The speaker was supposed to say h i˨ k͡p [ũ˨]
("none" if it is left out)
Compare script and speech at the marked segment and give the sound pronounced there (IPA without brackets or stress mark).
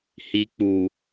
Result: u˨